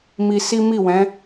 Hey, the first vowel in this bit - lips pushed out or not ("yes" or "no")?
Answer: no